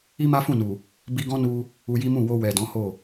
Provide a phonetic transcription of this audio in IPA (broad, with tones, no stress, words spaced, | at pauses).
i˦ma˦fũ˦˨nu˨ | bi˧ɡɔ̃˦nu˧ | u˧ji˦mũ˦˨ wo˧ wɛ˨dɔ̃˨˦ ho˦˨